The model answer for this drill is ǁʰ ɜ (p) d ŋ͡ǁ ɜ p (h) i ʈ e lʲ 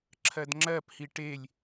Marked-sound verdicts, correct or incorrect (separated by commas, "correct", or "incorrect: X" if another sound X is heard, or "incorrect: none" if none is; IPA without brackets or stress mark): incorrect: none, correct